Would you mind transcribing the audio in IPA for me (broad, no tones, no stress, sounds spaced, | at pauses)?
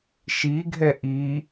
ʃ i ɡʱ ɛ ʔ i